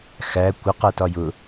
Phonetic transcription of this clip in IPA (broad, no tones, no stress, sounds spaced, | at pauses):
x æ kʷ ɪ q ɜ t ɒ j ʊ